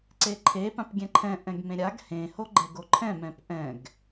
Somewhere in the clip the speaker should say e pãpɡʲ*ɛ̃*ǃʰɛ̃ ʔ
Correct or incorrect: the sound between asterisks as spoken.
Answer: correct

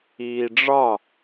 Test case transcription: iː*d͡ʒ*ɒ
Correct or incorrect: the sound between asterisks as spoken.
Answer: incorrect: ɖ͡ʐ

